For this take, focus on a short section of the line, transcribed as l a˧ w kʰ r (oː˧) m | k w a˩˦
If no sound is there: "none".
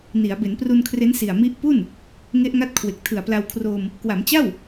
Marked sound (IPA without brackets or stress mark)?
oː˧